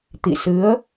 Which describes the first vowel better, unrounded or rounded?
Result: unrounded